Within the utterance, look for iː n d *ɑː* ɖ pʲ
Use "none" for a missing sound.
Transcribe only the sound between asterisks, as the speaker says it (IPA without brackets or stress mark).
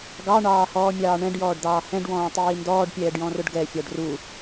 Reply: ɔː